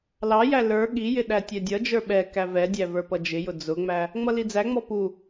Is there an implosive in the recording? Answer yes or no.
yes